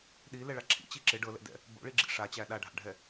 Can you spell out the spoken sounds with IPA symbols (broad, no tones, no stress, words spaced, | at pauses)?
ɗi lɛɭaǁʰḭ t͡ɕiǁɪ ɖɤlɛ̰dɛ̰ | bo̰ɭiɡ͡ǁḭ ʂat͡ɕæ ɗaɖʱa̰ɖʱɛ